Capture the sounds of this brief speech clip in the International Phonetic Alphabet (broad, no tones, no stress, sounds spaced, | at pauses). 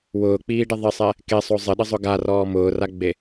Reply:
w ʊː k͡p iː ɖ ɪ ðˤ ɪ sˤ ɛ | k e sˤ o zˤ ɪ ɗ ɪ zˤ ʊ ɡ a r ɔː m ʊː r a ɡ͡b e